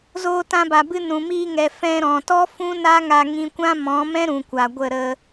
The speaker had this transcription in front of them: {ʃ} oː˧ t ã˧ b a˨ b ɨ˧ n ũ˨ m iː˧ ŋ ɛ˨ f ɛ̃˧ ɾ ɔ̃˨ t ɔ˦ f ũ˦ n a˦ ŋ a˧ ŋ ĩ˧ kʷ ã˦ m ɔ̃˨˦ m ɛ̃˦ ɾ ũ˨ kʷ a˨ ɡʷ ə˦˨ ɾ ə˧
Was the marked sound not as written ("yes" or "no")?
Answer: yes